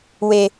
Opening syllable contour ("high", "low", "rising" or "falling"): low